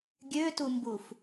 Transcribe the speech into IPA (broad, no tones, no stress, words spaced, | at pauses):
ɡʲøtumbuf